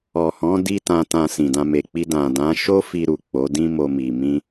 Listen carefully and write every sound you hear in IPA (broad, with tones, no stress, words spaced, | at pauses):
ɔ˨hɔ̃˨˦ di˦tã˧tã˧ sĩ˨dã˧ me˨k͡pi˧ dã˨dã˨˦ ʃo˦fi˧ɾu˨ k͡po˨˦dĩ˦mo˧mi˨ mĩ˧